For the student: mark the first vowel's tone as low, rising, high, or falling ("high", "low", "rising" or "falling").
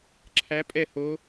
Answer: rising